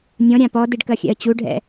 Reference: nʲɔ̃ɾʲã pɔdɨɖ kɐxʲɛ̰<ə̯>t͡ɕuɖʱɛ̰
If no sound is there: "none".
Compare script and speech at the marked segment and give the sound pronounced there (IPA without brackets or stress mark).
ə̯